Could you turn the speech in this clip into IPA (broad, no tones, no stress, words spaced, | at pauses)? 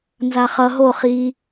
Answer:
nzaχʌ ɦo χi